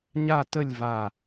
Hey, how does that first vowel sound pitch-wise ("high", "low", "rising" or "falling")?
falling